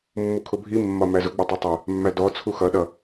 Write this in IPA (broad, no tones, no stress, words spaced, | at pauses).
mːukʰʊbʱi mːɒmæzʊ ɡ͡bətˤɛtˤə | mːædɔ t͡sʰuxʌ ɗʌ